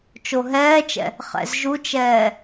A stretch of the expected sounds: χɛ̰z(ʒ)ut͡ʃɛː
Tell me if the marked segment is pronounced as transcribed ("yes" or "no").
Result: yes